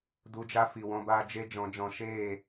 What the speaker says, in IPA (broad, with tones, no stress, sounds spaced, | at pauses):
d u˧ d͡ʒ a˦ f i˨ w ɔ̃˧ b aː˧ d͡ʒ e˦ d͡ʒ ɔ̃˨˦ d͡ʒ ɔ̃˧ ʃ eː˦˨